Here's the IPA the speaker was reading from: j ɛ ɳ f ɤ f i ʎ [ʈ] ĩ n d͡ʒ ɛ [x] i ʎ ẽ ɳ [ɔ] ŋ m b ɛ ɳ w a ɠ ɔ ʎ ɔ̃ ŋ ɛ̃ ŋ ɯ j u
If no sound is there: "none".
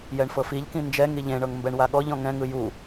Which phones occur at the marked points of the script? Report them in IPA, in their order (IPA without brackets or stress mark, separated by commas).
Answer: k, ŋ, ɤ